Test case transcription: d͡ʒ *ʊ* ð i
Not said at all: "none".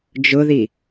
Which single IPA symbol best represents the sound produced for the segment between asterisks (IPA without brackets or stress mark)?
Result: ʊ